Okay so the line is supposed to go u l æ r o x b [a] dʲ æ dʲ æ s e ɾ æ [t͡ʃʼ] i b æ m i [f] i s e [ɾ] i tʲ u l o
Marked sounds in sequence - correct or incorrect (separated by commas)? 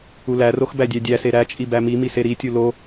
incorrect, correct, incorrect, correct